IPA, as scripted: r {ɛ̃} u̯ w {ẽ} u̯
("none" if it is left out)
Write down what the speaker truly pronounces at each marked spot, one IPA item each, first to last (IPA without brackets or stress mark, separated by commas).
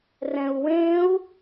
ɛ̃, ẽ